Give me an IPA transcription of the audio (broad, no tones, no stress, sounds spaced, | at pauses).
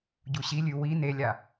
ɟ u ɕ i lʲ ʉ w i n e lʲ a